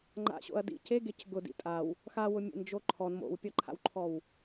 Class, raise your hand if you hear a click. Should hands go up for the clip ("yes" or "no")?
yes